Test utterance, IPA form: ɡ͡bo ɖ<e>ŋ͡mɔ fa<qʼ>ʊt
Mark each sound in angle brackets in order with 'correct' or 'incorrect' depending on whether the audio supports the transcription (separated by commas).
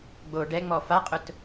incorrect, correct